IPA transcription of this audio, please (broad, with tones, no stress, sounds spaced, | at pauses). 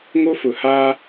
ŋ o˦ f ʊ˨ h aː˦